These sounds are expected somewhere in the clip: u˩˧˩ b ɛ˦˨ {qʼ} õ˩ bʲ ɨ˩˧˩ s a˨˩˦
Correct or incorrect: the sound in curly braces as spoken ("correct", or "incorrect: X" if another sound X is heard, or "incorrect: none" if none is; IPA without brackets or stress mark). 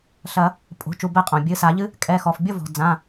correct